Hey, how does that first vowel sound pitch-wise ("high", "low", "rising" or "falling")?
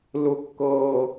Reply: high